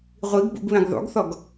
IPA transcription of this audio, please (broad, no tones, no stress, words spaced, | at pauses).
ʁʷiɡbṵɡβẽɡ ðˤṵɡθɔɡ